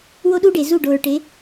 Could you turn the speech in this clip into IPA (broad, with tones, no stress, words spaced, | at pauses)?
wo˦ɗu˦ɖe˨ zu˦˨ɖo˨ɹʈe˨˦